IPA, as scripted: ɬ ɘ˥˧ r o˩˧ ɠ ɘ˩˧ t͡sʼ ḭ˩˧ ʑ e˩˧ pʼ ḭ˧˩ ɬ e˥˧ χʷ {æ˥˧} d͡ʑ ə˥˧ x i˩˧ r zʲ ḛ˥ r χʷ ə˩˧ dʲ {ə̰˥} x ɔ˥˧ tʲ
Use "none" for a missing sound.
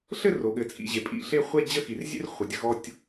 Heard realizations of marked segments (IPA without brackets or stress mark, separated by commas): ɛ˥˧, ə̰˧